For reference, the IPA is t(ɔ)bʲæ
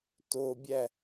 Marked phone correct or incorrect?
incorrect